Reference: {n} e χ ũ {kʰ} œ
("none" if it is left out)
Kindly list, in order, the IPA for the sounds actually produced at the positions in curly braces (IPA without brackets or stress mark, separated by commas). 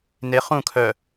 n, kʰ